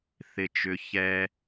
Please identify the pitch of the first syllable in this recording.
high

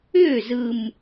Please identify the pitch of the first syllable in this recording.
falling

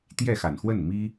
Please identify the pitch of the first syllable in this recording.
falling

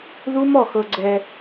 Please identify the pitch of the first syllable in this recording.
high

